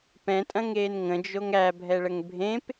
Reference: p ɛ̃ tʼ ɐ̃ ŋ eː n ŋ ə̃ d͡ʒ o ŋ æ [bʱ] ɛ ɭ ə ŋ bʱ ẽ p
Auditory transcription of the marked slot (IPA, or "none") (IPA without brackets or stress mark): bʱ